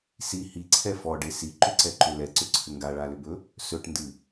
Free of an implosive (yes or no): yes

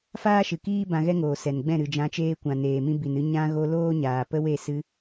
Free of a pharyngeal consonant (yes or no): yes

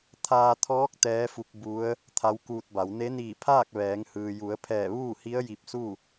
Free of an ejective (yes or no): yes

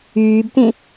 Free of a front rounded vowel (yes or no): no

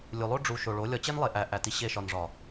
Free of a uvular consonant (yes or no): yes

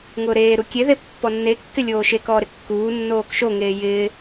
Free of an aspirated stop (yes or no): yes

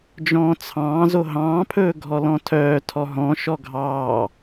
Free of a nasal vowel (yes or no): no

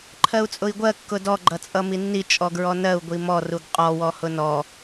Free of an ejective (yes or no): no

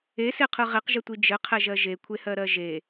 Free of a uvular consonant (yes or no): no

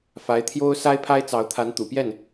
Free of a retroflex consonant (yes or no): yes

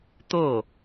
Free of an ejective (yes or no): yes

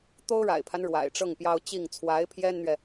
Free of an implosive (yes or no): yes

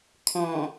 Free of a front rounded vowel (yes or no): yes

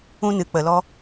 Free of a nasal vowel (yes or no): no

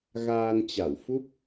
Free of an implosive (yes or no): yes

